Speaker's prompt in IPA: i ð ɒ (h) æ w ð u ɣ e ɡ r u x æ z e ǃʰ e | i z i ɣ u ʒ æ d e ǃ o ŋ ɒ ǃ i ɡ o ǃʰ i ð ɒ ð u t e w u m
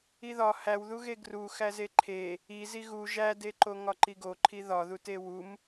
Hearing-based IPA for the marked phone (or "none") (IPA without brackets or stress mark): h